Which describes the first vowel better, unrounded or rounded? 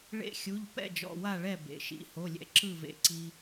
unrounded